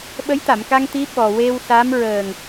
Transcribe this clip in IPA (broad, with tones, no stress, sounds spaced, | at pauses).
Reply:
ɓ ə˧˥ j t̪ a˨˩˨ m k a˧ ŋ t̪ i˧˥ ɓ ɔ˨˩ w e˧ w s a˧˥ m ɹ əː˨˩ ŋ